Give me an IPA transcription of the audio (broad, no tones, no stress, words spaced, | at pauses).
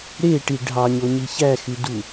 ɾeʈi ɖʱɑɲoɲi çæxydu